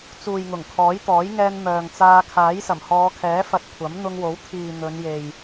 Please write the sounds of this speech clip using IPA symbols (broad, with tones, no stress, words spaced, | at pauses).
t͡suː˨jŋʊ˨˩ŋ kʰɔː˨˥jt̪ɔː˨˥jŋɛː˧n mœː˨ŋt͡saː˧ kʰaː˨˥jsɐ˨˩mhɔː˨˧kʰɛː˨˥ fɐ˧t̚kʷʰɐ˨˥m n̪ʊ˧ŋwo˨˥wt̪ʰiː˨ n̪ɵ˨˧nje˨j